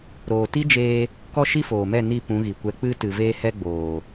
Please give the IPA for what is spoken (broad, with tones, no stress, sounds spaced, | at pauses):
ɾ oː˨ t i˦ d͡ʒ eː˧ | k ɔ˦ ʃ i˦ f oː˨ m ɛ˦˨ n i˦˨ p ũ˨˦ ɣ i˨ kʷ ɛ˧ k͡p ɨ˧ t ɨ˨ v eː˧ h ɛ˧ ɡ͡b oː˨